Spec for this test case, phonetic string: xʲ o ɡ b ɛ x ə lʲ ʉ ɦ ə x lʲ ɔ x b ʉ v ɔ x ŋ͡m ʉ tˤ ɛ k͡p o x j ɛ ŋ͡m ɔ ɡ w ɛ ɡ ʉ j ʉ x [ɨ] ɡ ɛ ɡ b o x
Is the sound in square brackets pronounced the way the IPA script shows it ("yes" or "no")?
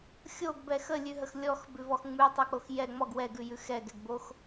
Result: no